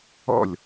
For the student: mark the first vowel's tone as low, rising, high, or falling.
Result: falling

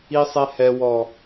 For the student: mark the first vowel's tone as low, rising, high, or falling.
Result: high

